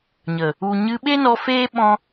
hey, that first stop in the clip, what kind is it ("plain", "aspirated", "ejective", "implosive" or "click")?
implosive